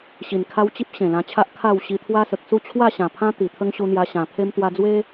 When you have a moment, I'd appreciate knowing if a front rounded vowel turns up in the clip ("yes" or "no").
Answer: no